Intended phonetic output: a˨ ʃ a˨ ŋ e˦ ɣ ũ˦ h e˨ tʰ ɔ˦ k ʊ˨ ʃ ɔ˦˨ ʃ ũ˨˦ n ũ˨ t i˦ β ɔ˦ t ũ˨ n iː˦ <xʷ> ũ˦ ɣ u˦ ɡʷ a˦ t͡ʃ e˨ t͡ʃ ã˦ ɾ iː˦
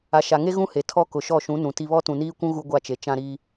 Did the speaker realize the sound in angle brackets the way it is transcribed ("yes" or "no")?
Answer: no